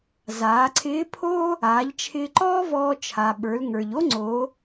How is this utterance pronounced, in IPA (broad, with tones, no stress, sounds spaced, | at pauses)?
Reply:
z aː˩˧ ǀʰ ɪː˧˥ pʰ oː˥ | aː˩˧ ʎ t͡ʃʰ ɪː˧ ǃ ɔː˥ v ɔː˧ t͡ʃʰ a˩ ɓ ə˞˩˧ l ŋ ə˞˩ ʎ o˥ ŋ͡ǀ oː˩˧